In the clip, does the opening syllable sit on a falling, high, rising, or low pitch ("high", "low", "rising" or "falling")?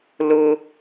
high